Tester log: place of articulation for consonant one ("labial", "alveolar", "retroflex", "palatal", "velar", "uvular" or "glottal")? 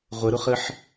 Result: uvular